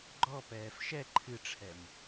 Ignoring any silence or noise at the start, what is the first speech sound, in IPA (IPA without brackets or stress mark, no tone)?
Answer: ɡ͡ǃ